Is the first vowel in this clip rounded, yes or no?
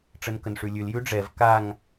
no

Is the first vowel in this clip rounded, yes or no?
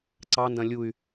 no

